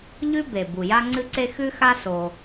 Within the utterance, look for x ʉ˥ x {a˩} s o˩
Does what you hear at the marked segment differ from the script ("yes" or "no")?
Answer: yes